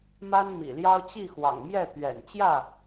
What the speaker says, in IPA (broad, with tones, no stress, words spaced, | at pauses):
ma˦nmḭ˨˩ljɑ˦ʊ̯ t͡ɕi˥˨xwɑ̰˨˩ŋ mjɛ˥˨ t̪ɥɛ̰˨˩nt͡ɕjä˥˨